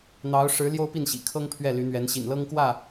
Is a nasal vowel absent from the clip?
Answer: yes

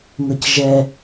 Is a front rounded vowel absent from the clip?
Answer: yes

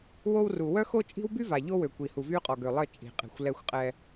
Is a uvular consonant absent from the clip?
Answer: no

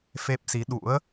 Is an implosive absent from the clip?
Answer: no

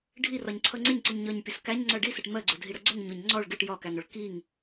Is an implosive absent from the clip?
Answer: yes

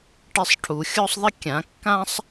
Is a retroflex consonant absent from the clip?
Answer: no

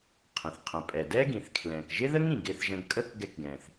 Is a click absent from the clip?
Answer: yes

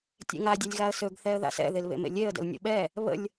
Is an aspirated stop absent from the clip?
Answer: yes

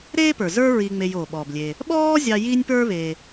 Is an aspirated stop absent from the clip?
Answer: yes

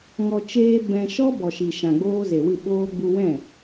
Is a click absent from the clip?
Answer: yes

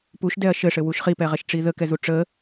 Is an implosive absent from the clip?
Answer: yes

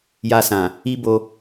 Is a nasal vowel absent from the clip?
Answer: no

